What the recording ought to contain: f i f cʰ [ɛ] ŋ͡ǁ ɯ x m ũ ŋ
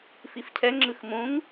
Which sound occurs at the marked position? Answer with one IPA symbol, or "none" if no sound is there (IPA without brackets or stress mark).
ɛ